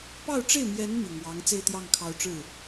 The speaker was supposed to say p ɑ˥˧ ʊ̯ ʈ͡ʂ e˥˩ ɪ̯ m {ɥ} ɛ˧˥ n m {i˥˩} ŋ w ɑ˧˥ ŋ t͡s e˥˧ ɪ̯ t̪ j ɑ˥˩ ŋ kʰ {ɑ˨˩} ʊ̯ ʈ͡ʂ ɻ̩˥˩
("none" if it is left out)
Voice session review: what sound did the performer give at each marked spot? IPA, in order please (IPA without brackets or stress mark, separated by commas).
j, i˨˩, ɑ˧˥